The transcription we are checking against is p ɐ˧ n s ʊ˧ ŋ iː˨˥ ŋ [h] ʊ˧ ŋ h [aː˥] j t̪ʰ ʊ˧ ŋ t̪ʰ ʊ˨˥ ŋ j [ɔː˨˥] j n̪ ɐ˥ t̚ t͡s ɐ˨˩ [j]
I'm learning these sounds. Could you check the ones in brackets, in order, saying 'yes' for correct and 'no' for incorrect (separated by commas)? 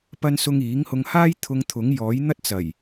yes, yes, yes, yes